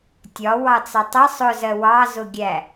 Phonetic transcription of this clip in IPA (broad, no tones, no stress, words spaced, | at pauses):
tʲɒwɑt͡sɑ tˤʌ sˤʊzɜ wɑzʊɡʲæ